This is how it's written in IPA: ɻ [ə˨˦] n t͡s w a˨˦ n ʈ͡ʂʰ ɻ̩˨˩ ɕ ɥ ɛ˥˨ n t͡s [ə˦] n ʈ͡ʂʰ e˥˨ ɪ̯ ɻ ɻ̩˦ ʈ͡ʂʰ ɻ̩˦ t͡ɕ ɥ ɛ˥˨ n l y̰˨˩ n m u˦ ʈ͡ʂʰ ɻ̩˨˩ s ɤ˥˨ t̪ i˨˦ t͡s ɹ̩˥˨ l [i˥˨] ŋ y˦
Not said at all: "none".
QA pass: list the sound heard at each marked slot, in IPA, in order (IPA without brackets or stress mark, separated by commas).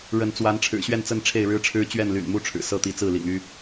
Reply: ə˨˦, ə˥˨, ḭ˨˩